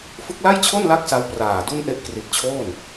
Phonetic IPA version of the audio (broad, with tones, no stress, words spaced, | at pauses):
fɯ˦˥k̚la˥˩jt͡ɕʰo˥˩nla˦˥k̚ sa˦˥wpraː˨˩du˥˩nʔe˥˩ʔ kri˨˩t̚ t͡ɕʰoː˥˩n